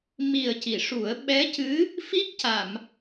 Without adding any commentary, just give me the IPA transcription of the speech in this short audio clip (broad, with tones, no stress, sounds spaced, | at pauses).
m i˨˩ ə̯ c i˨˩˨ ʂ u˨˩˦ ə̯ ɓ ɛ˧˥ c ɨ˧˥ | f i˦˥ k̚ c a˨˩˨ m